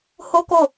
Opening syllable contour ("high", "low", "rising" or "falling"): high